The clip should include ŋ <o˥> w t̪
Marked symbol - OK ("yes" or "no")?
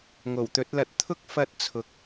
no